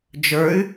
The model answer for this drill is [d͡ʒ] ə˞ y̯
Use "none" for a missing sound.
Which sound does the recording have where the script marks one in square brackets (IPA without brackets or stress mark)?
d͡ʒ